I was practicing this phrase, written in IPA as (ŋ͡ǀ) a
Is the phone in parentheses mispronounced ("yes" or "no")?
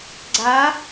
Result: yes